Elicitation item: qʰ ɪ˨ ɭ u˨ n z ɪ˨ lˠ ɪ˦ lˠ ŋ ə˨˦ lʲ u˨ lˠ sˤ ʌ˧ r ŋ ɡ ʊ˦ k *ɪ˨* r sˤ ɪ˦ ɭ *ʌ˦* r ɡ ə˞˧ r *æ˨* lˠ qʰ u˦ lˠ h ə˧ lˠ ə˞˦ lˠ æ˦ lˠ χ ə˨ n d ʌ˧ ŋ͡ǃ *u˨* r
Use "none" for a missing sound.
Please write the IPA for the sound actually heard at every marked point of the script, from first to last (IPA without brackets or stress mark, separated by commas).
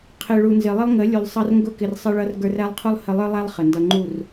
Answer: ɪ˧, ʌ˦, æ˦, u˦˨